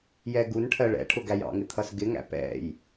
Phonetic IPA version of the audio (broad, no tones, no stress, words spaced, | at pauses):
jɛɡunʈʰɜ ɭɛ̰ʈʰʊ ɡæjɑ̰ŋɪ t̪ʰʌsɡɪŋæ̰ pɛ̰j